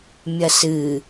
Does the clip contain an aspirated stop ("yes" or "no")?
no